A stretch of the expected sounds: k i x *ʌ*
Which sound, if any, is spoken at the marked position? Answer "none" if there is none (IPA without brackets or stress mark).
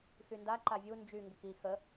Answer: ə